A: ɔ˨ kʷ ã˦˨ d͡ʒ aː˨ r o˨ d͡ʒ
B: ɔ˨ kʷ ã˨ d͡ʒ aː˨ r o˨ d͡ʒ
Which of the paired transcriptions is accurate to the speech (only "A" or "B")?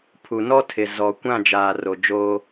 A